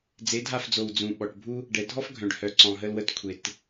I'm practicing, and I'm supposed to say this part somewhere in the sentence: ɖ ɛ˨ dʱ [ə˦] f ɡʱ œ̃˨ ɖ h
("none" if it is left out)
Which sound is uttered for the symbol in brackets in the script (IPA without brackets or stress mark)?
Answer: ɔ˦